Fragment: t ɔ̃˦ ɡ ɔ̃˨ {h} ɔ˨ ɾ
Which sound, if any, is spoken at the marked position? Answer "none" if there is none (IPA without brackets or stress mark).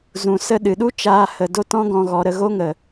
ɣ